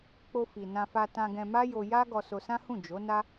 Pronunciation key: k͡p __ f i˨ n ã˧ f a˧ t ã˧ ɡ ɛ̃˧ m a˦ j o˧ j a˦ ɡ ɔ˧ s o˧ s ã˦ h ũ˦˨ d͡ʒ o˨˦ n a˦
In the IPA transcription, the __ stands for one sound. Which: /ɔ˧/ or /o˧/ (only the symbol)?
o˧